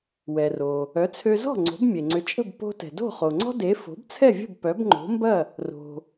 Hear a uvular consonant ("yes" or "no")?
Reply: yes